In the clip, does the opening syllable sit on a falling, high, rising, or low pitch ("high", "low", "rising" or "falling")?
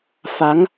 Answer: rising